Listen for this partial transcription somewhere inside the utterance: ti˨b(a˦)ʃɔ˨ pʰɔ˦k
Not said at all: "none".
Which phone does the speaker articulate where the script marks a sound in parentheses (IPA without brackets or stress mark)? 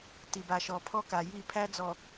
a˨